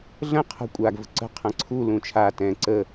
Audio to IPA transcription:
ɮ ə̃ qʰ ə̤ kʷʼ a ɡ v ə̤ ǀ ə̤ qʰ ɐ̃ ǀʰ u l ũ t͡ʃʰ a t ɛ̃ ǀ ə

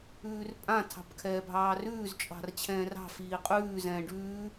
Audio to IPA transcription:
ʉː r pʼ ã tʰ ɑ̤ p kʰ ɛː bʱ ɑː r ʉː z t͡ʃʼ ɑ̤ r t͡ɕʰ ɛ̃ː r ɑ̤ f iː qʼ ʉː z ɛ̃ː ɖ ʉː

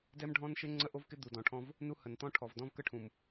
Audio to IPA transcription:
d ɛ˦ m ɖʱ ɔ̃˦ n ʃ ɪ˦ ŋ͡ǀ ə˦ ʔ o˦ v k ɪ˦ d̪ u˨ d ɔ̃˨ ʈʰ ɔ̃˦ v | n u˦ h ə˨ n t̪ ɔ̃˦ ʈʰ ɔ˨ v d ɔ̃˦ v k ə˦ ʈʰ ũ˨ m

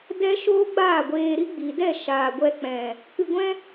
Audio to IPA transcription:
d ɛ˦ ʃ oː˦ ɡ͡b aː˦˨ ɡʷ eː˧ ɾ i˦ ɡ͡b i˨ d ɛ˦˨ ʃ aː˨ ɡʷ ɛ˧ k͡p ɛ̃˨ | k ɨ˧ ɡʷ ɛ̃˦

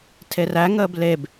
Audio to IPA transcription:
tʰ e r æ ŋ əː b l e b

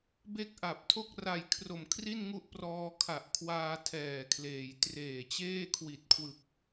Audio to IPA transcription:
b e˦˥ k̚ ʔ a˨˩ p̚ tʰ o˥˩ k̚ r a˨˩ j kʰ r o˨˩ m kʰ r i˥˩ n ŋ u˦˥ ʔ p r ɔː˧ kʰ a˨˩ ʔ kʰ w aː˧ tʰ ɛː˨˩ kʰ l eː˩˦ j t r eː˨˩ t͡ɕ eː˥˩ kʰ w i˨˩ t̚ kʰ w ɯ˨˩ k̚

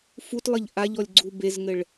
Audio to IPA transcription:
f u t lˠ ə ʎ ʔ a ʎ ɔ lʲ ɡ͡ǀ u b e z ŋ ɘ ɭ

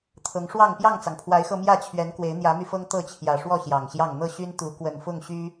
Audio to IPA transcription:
t̪ʰ ɤ˨˦ ŋ ʂ w ɑ˥˨ ŋ p j ɑ˥˨ ŋ t͡s ɑ˩ ŋ pʰ w a˨˦ ɪ̯ x ɤ˧ m j ä˥˨ t͡ɕʰ ɥ ɛ˨˦ n k w e˨˦ ɪ̯ n̪ j ä˨˦ m y˧ f ɤ˦ ŋ t̪ ɤ˥˨ t͡ɕʰ j ä˨˩ ʂ w ɔ˥˨ ɕ j ɑ˨˩ ŋ ɕ j ɑ˥˨ ŋ n̪ ɤ˥˨ ɕ y˦ n t̪ u˨˦ k w ə˨˩ n f ʊ˥˨ ŋ ɕ y˦

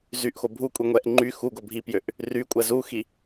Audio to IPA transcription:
z y ʔ x o bʱ u kʷʼ i ŋʷ ɛ ʔ ŋ͡ǃ y x u ɡ o bʱ i p j ø ʔ | r y kʷʼ ɛ z u x i

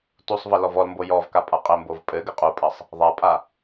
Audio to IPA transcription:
t u sˤ v ɐ l ɔ v ɔ l m b o j ɔ v k a pʼ a qʼ ɘ m b o v pʼ ɘ ɡ ɘ qʼ u pʼ ɐ sˤ | ðˤ a pʼ a

